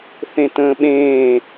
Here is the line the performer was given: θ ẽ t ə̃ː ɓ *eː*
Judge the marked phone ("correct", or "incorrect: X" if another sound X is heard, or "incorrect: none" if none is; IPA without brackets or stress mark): incorrect: ẽː